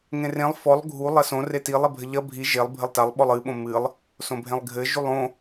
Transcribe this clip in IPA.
ŋẽrẽlˠ fɔlˠ ɡʱu lˠɐsõ retilˠ ɛbʱɘʎɐ bʱi ʒelˠ bʱɘlˠtalˠ ɓɔlˠɨ ɓõmɨlˠ | sõbʱẽlˠɡʱɘ ʒulˠõ

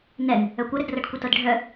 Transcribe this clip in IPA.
nɛn | œkʷəɾɘdrɤɖ kʷətɤdɖʱœ

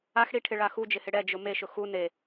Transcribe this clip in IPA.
axɽiʈʰɪ ɭaxud͡ʒɪhɪ ɽɛd͡ʒʊ meʃʊ xu ne

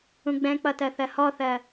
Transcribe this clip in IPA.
ũɡ͡bɛ̃k͡pʌ tɜθɜhɔθɜ

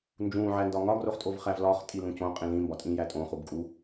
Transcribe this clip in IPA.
nd͡ʒũːʕæ ndɒŋɒɡroχtʼov χævlɒːχtʼi lũcõ qʼĩlĩmbɒ tʼĩjætʼõ χubkʼu

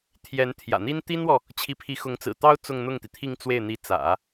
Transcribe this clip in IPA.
t̪ʰjɛ˧˥nt̪ʰjä̰˨˩n̪i˥n t̪i˥nwɔ˨ | t͡ɕʰi˧˥pʰi˧˥xʊ˧˥ŋ t͡sɹ̩˨˩t̪ɑ˥ʊ̯ t͡sʊ˥˧ŋn̪ʊ˥˩ŋt̪i˩ t̪ʰi˥˧ŋt͡swe˥˩ɪ̯ n̪i˧˥t͡sä̰˨˩˦

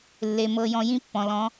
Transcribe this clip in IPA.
lːe˨mɤ˧jɔ̃˧ jĩ˦pːɔ̃˨lɔ̃˨˦

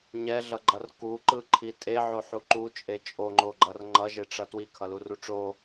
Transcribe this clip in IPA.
ɲɛɮʌɡ͡ǃʌr kuǃɯǃʰi tʼeʕoħu ǃut͡ʃʼe t͡ʃʼoŋ͡ǃoɡ͡ǃʌr ŋ͡ǃʌʒeʈ͡ʂʌ twikʰʌluru ʈ͡ʂo

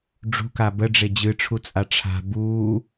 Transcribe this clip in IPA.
ɖ͡ʐṳka bəɖ͡ʐe d͡ʑɨʈ͡ʂʰut͡sʼa ʈ͡ʂʰa̤ buː

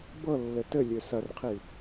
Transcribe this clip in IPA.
bɤlːɘ tɘlʲø sɐrqʰi

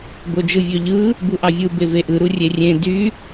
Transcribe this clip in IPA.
bod͡ʒɯvʲøʎɯ | buʔɑvʲɯ beveʔɯ ɾurʲerʲẽ dy

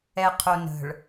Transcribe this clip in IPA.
ɛqʰonə̤ɭ

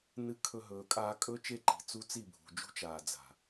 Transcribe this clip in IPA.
nɨ˧kʰɵ˧ ɦɵː˨kʼaː˧kʼɵ˦t͡ʃe˦˨ ǃi̤˨t͡su˦ t͡si˦˨bʱṳ˨d͡ʒṳ˦t͡ʃaː˨ d͡za̤˨

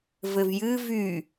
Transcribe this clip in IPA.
vɘvjɨ vy

